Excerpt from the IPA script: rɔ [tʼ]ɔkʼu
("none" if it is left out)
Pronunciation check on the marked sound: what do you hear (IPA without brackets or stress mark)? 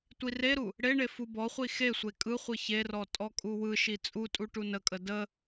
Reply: tʼ